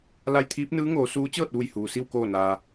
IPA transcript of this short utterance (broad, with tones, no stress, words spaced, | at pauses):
la˧jt̪ʰiː˧˥p̚nɯː˧˥ŋoː˩˧ suː˧˥ t͡ɕɤː˥˨t̚ʋu˧˩j huː˩si˥˨w koː˧˩naː˩